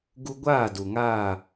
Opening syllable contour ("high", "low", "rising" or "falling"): high